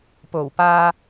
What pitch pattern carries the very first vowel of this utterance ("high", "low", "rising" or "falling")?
low